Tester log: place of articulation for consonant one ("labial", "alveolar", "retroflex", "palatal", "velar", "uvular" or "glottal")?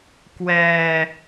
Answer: velar